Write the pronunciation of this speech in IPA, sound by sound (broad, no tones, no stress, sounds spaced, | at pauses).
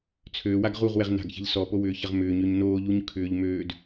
t͡sʰ øː w a ɡ ʁ u ʁ w ɛ ʁ n a̤ ɡ ç ɛ̤ ʎ s ɔ p o w ʏː ç ɐ ʁ m ʏː ɲ ø ɲ n oː ʎ u ɲ kʰ ʏː ʎ m øː d